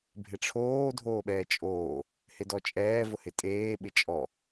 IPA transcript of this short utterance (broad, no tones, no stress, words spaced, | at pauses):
bʱɪʈ͡ʂʰoː dʱoːɓɛːt͡ʃʼoː | hɪdɔt͡ʃʼɛː vʊhɪtʼeː ɓɪt͡ʃʼɔ